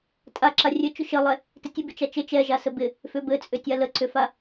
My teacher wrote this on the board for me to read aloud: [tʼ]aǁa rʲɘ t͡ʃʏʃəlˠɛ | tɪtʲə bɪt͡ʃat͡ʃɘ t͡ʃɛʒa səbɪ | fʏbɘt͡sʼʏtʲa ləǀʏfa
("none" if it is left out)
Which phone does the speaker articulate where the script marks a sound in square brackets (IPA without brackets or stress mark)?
tʼ